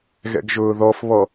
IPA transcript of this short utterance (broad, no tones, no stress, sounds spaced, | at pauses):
ɣ ɛ̰ ɡ ʒ ʊː ð ɔ f β ɔ